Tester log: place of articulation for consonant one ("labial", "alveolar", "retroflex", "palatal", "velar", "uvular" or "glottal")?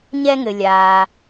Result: palatal